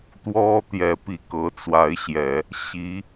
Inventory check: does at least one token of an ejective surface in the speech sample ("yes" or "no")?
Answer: no